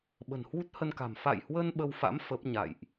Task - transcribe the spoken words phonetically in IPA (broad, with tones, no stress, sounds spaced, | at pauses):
ɓ ə̤˨˩ n h w u˦˥ t̚ h ə˧ n k a̤˨˩ m f a̰˧˨ j h w ə˧ n ɓ ə˧ w f a̰˧˥ m f ə˦˥ p̚ ɲ a̰˧˨ j ʔ